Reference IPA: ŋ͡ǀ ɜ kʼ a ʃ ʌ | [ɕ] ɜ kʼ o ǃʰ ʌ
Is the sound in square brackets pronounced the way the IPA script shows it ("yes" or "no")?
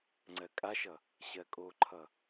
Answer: yes